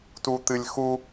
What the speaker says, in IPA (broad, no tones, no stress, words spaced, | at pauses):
tut̪ɨlʲxu